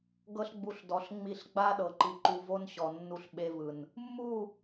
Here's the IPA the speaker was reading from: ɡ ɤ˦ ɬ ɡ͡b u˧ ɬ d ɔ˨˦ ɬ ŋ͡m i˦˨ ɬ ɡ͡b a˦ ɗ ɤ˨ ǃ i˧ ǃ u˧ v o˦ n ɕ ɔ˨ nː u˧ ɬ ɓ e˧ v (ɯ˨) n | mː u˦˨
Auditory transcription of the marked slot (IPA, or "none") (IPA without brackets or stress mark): ɯ˨